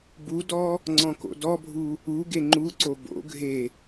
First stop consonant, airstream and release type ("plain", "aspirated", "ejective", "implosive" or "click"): plain